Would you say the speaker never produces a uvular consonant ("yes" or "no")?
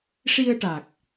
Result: yes